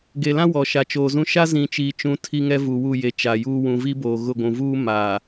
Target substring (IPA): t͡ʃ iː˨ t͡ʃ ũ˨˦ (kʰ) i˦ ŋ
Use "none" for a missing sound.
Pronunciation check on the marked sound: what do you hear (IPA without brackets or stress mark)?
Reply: tʰ